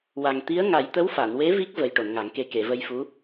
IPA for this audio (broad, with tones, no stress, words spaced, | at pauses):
wa˨˩ŋ t̪i˧˥ə̯ŋa˨˩˦j t̪ə˧˥wfa˨˩˨nwe˧˥ vi˦˥k̚ və˨˩j ʈo˨˩˨nŋa˨˩˦ŋke˧ ke˨˩˨və˧jfu˧˥